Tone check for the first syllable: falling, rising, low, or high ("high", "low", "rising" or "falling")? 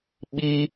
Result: high